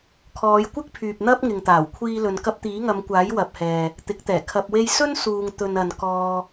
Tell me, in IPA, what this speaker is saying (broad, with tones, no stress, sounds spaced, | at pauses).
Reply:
kʰ ɔː˨˧ j kʷ ɪ˥ k̚ pʰ yː˨ p̚ n̪ ɐ˥ p̚ ŋ ɪ˨ ŋ t̪ aː˨˩ w kʷʰ iː˧ l ɵ˨ n k ɐ˧ p̚ t̪ iː˨˥ ŋ ɐ˨˧ m kʷ aː˨˥ j w ɐ˨ p̚ h ɛː˨ | t̪ ɪ˨˥ k̚ t̪ ɛː˨˩ kʰ ɐ˧ p̚ w e˧ j s ɵ˥ n s uː˨ ŋ t̪ ɵ˨ n ɐ˨ n k ɔː˧